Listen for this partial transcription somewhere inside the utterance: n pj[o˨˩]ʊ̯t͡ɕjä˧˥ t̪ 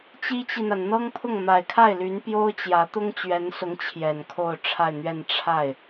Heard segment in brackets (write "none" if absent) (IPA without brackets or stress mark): o˥